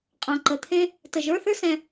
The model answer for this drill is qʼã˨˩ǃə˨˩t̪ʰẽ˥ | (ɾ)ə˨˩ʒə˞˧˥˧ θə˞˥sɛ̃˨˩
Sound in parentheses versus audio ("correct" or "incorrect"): incorrect